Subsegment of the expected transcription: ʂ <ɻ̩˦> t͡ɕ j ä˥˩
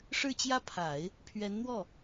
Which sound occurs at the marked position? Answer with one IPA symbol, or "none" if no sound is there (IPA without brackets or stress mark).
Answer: ɻ̩˥˧